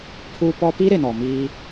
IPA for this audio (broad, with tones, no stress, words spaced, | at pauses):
pʰuː˦pɔ˦ pi˦ ɾɪ˨nɔ˨miː˦